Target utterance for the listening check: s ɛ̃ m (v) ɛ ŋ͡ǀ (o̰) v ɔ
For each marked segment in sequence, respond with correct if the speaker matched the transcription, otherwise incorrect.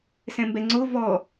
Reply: incorrect, incorrect

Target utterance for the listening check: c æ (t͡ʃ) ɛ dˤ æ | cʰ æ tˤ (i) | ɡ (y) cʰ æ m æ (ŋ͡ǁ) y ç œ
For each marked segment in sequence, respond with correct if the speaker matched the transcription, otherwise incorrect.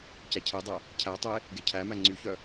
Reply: incorrect, incorrect, incorrect, incorrect

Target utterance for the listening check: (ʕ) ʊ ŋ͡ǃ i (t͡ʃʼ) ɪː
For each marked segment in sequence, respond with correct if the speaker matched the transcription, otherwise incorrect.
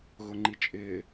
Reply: incorrect, correct

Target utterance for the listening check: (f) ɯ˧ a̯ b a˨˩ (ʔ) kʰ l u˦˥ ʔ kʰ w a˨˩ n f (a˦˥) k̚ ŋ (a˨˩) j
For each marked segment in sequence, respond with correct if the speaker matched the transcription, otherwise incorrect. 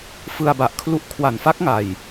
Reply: correct, correct, correct, correct

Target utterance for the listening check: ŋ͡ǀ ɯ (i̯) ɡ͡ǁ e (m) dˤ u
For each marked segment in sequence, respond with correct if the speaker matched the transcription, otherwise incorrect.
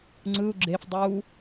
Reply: incorrect, incorrect

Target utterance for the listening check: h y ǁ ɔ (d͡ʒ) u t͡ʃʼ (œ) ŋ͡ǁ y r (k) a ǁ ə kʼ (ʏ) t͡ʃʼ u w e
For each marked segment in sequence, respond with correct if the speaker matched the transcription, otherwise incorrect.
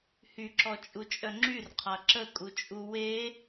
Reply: incorrect, correct, incorrect, incorrect

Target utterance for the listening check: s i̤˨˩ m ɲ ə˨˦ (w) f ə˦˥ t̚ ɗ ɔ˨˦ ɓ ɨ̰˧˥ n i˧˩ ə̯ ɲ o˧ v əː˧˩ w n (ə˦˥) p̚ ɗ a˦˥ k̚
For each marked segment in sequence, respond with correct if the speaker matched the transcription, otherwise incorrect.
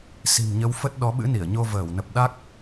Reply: correct, incorrect

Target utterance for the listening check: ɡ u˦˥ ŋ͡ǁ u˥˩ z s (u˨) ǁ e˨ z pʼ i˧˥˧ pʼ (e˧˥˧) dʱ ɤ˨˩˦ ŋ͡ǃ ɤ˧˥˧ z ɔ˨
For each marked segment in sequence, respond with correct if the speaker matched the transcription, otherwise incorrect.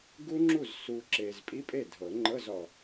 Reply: correct, incorrect

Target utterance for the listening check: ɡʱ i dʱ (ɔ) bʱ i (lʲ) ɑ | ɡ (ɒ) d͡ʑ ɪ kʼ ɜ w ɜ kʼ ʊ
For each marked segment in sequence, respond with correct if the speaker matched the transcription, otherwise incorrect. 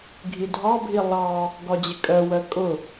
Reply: incorrect, incorrect, correct

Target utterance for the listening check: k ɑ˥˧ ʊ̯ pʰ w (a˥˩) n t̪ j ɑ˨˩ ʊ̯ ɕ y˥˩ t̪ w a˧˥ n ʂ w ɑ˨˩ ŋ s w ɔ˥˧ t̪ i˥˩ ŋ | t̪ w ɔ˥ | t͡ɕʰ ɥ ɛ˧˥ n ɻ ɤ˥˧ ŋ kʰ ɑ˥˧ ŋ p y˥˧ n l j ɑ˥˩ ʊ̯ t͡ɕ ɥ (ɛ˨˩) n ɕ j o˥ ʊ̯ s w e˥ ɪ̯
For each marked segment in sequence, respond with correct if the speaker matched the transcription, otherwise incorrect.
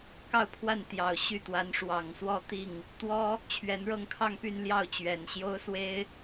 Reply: correct, correct

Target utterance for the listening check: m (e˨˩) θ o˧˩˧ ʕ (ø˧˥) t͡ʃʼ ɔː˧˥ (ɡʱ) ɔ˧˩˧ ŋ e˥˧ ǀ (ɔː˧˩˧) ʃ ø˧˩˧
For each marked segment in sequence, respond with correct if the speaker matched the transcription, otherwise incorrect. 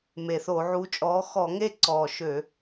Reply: correct, incorrect, incorrect, incorrect

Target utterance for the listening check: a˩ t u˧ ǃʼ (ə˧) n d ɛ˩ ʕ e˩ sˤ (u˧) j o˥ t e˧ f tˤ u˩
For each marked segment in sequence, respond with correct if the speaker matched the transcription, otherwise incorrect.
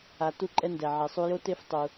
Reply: incorrect, correct

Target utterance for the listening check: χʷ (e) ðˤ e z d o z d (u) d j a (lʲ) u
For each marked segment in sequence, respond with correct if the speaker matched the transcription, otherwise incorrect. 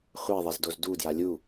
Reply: correct, correct, correct

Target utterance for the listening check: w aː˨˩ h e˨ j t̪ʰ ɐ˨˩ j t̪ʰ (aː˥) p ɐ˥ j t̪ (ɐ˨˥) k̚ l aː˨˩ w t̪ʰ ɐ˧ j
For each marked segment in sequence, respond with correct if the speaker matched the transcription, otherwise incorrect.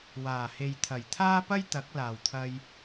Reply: correct, correct

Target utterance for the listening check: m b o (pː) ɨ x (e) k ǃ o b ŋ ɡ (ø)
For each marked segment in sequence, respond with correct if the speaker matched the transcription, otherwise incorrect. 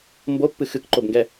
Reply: correct, incorrect, incorrect

